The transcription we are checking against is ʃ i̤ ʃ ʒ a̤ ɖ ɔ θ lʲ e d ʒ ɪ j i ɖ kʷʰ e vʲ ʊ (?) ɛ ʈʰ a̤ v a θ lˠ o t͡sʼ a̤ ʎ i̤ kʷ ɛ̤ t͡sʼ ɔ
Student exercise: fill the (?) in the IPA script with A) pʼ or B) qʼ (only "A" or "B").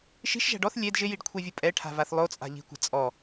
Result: A